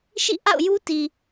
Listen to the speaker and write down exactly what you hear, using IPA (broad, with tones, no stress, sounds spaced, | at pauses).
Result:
ʃ ḭ˦˨ ʔ a̰˦˨ ʊ̯ j u˦ t i˨